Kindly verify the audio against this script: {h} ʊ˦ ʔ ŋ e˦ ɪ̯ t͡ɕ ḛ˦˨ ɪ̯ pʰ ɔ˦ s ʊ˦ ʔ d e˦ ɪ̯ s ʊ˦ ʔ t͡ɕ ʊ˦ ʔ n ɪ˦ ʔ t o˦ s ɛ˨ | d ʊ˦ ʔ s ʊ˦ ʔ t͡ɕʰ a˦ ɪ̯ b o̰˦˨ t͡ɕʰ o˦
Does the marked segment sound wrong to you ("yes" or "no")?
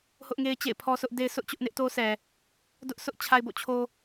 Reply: no